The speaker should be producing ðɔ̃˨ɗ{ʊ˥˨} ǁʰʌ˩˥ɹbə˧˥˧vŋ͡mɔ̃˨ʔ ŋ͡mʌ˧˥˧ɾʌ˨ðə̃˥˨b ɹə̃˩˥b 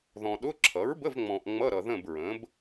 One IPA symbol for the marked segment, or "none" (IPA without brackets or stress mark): ʊ˧˥˧